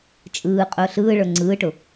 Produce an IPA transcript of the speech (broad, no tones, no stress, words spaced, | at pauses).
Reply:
t͡ʃʼɯː qʼʊːɬɯːɭə˞ ŋ͡ǀɯːʈʊ